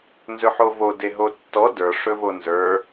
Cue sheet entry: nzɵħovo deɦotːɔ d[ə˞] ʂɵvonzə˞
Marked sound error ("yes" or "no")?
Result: no